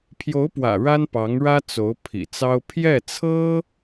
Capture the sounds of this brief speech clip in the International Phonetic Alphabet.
pʰjo˧˥ʊ̯pwä̰˨˩ ɻa˥npɑ˧˥ŋɻä˥ t͡so˧˥ʊ̯ pʰḭ˨˩t͡sɑ˥ʊ̯ pʰjɛ˥˩t͡sʰɤ˥

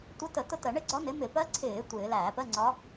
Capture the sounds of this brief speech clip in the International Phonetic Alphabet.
tʷə˧˥tə˧˩˧ tʊ˥˧tɜ˧˩˧ ɳɪ˥˧ɡ͡ǀɒ˧˥nɪ˩˥ mɪ˧˩˧pɜ˧˥ǀʰɪː˧˩˧ tʷɪː˧˩˧ læː˧˩˧pɜ˧˥˧ŋ͡ǀɒ˧˥

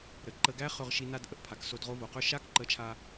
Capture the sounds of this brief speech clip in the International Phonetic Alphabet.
ɾə˨ǃə˧ɡæ˦ χɵ˧ʁʃi˧ na˧dʔə˧ʔpʰa˨k so˧dʁo˧vo˨qɵ˦˨ ʃa˦kǃə˨˦t͡ʃʰa˧

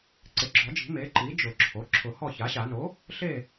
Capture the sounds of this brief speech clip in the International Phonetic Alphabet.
ǀɪ˩˥ɡ͡ǁɔ˨˩˦d͡ʒi̤˨˩˦ me˩˥ǃi˩˥ d͡ʒʊ˨˩˦ǁʰo˩˥ ǁʰʊ˨˩˦hɔ˥˨ça˩˥ɕa˨˩˦ no˩˥ | ɬe˥˨

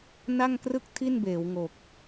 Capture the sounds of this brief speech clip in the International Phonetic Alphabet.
na˥˩ŋkrɯ˥˩k̚ tʰi˥˩nbeː˩˦wŋo˨˩k̚

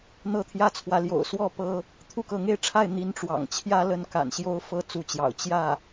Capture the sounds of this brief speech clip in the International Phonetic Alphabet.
n̪ɤ˥˩t̪ʰjä˥t͡sʰwä˧˥ ljo̰˨˩ʊ̯swɔ˥˩ pɤ˥ | t̪ʰu˥˩kɤ˧˥ŋe˥˧ɪ̯ʈ͡ʂʰa˥˩ɪ̯ n̪i˧˥nʈ͡ʂwɑ̰˨˩ŋt͡ɕʰjä˥ lə˥˩nka̰˨˩nɕjo˥ʊ̯ fɤ˧˥ t͡su˧˥t͡ɕjɑ̰˨˩ʊ̯ t͡ɕjä˥˩

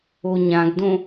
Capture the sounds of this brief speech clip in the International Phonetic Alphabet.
oɲãɡdõ

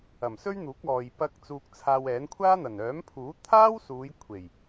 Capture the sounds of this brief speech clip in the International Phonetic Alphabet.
ɐ˨˩msɵ˥ɥn̪uː˨˥k̚ ɔː˨j pɐ˧k̚ t͡suː˧k̚t͡sʰaː˧wɛː˨˥n kʷʰaː˥n̪ɐ˨˩n œː˨˥mpʰuː˨˥ t̪ʰaː˥wsuː˨˧j kʷʰe˨˩j

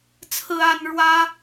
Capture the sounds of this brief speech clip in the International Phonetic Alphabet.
t͡sʰɹ̩˥a˥n ɻwä˥

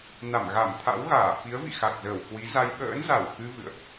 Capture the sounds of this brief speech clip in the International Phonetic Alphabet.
na˧˩mɣa˧˩mt̪ʰa̰˧˥wɣaː˧˩ fi˨˦ə̯vḭ˧˨ xa˨˩k̚zəː˧˩w kwi˨˦za˧j ɓə̰ː˧˥nza˧˩wkɨ˧ vɨ̰˧˨ə̯ʔ

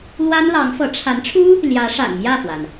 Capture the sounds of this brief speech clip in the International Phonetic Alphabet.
lwa˥nlɑ˧˥ŋfɤ˧˥ ʈ͡ʂʰa˧˥nʈ͡ʂʰu˥ | ljä˧˥ ʂa̰˨˩nmjä˥˩fwa˩n

